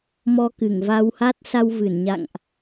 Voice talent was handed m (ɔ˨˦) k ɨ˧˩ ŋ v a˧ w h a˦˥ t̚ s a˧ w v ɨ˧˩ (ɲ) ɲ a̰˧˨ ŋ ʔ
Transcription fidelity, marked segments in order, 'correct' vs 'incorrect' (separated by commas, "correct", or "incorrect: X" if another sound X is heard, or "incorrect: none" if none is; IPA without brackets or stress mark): incorrect: ɔ˧, incorrect: n